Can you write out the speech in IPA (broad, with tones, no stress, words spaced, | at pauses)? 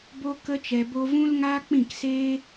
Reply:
bo˧kə˧ t͡ʃɛ˧bo˦ vũ˦lŋaː˦k͡pĩ˦˨kseː˦